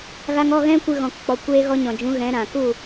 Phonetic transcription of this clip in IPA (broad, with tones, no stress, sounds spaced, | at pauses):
ɣ a˧ ŋ ɔ˦˨ ɣ ɛ̃˦ kʷ ɨ˧ ɣ ɔ̃˨ k k͡p ɔ˨ kʷ eː˧ ɣ ɔ˧ ɲ ɔ̃˨ d͡ʒ ũ˨˦ ɣ ɛ̃˨˦ ɾ ã˨ k u˦˨